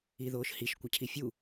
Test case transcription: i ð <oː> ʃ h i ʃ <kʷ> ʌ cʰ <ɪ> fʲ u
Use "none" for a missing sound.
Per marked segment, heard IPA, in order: oː, kʷ, i

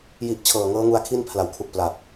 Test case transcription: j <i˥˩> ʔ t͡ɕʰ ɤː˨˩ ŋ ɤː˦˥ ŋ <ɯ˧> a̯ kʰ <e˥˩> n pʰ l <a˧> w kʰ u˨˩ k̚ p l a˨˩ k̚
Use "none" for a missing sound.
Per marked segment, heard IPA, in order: i˨˩, u˧, i˥˩, a˨˩

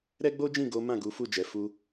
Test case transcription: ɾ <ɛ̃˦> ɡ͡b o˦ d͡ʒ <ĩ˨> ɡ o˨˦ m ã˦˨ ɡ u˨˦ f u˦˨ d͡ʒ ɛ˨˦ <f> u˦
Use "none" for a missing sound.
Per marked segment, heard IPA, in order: ɛ˦, ĩ˦˨, f

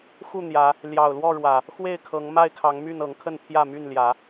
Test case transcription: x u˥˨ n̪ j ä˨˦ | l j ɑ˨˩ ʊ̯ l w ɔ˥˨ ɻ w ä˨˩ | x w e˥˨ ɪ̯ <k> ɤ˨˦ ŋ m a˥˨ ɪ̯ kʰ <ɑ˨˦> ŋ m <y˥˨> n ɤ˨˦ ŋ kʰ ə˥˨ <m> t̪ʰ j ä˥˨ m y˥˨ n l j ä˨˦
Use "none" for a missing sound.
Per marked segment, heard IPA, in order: kʰ, ɑ˨˦, y˥˨, n

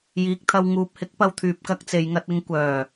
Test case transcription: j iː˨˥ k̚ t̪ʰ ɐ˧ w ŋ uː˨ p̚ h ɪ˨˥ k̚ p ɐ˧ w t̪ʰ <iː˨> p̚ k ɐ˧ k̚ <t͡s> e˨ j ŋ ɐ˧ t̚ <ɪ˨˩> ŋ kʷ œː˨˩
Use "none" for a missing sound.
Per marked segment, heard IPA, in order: yː˨, t͡s, ɪ˧

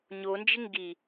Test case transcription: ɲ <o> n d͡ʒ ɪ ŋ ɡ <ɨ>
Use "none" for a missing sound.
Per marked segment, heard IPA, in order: o, i

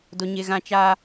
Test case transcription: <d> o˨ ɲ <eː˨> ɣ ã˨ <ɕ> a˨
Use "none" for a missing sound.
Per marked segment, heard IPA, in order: d, e˨, t͡ʃ

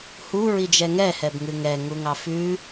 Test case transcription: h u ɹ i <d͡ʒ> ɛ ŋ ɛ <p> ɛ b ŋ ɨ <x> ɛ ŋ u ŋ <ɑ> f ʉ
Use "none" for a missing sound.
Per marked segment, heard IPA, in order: d͡ʒ, h, ŋ, ɑ

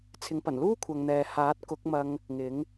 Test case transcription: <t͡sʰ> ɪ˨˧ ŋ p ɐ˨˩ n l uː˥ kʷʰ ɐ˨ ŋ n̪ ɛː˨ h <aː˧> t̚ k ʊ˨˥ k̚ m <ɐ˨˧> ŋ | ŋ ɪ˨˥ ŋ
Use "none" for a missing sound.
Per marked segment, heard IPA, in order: t͡sʰ, aː˨˥, ɐ˧

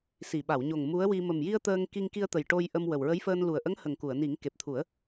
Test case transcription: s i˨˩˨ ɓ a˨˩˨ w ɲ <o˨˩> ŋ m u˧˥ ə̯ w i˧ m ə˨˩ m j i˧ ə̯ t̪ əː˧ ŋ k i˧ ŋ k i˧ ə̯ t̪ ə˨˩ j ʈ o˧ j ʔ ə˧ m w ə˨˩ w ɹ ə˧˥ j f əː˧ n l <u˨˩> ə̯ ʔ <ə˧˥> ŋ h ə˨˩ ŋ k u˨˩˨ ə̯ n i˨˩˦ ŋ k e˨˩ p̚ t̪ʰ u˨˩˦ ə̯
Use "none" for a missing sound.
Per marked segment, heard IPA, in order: o˨˩, u˨˩, ə˧˥

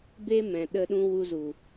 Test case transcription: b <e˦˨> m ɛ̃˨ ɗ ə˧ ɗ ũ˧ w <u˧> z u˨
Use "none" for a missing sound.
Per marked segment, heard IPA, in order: e˦, u˧

